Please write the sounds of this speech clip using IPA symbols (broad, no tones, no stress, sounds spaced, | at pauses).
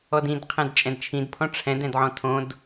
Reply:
ɔ d ĩ d qʰ ɛ̃ d t͡ʃʼ ɛ̃ d t͡ʃʰ ĩ d pʰ ɔ̃ ʈ͡ʂʰ ɛ̃ d ɛ̃ d ʕ ɔ̃ tʰ õ d